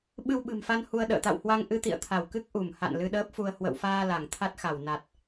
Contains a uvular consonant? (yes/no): no